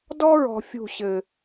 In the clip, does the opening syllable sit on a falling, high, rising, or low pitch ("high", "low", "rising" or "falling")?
high